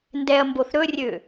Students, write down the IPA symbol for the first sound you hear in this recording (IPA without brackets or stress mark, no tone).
n